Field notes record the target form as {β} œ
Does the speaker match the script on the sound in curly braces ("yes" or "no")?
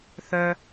no